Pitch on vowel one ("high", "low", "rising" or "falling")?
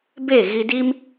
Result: falling